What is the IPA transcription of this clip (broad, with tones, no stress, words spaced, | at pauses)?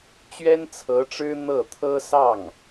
t͡ɕɥɛ˥nt͡sʰɤ˧˥ʈ͡ʂɻ̩˥ n̪ɤ˥˩t̪ʰɤ˥sɑ˥˩ŋ